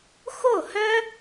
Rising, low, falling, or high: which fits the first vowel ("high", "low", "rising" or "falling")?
falling